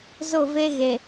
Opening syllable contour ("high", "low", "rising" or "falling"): falling